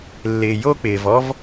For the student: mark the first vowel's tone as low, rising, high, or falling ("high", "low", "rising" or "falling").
low